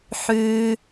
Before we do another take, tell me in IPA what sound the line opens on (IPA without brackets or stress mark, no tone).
ħ